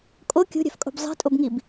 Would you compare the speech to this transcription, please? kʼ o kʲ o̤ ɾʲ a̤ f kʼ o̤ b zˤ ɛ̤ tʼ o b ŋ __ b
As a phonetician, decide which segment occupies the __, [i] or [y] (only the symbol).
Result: i